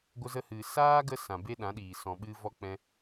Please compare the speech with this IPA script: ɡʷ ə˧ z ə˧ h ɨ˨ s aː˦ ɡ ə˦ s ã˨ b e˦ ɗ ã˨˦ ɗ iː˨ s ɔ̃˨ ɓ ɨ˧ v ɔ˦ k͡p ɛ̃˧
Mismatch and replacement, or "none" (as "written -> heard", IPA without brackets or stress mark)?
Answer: none